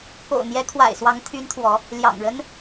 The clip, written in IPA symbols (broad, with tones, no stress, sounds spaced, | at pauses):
k o̰˨˩ ʊ̯ n̪ j ɛ˨˦ kʰ w a̰˨˩ ɪ̯ s w ɑ˨˦ ŋ t̪ʰ y˨˦ n t̪ʰ w ɔ˨˦ | l j ɑ̰˨˩ ŋ ɻ ə˦ n